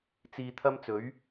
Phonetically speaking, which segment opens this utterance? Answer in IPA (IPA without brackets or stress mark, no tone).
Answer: t͡s